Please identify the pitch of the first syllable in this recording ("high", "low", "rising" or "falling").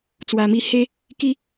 low